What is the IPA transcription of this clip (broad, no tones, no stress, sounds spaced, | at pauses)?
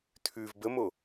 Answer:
tʰ ʉ v b ə m o